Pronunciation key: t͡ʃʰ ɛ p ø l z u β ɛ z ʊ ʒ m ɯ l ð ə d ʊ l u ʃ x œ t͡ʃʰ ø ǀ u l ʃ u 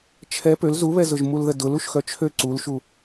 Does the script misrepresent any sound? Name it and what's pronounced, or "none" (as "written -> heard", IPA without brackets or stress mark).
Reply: ɯ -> u